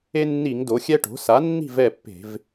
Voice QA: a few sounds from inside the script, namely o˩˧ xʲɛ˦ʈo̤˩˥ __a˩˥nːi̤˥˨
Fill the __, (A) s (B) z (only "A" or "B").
A